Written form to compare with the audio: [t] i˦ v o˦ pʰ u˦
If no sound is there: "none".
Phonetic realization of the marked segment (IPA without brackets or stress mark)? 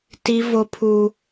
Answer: t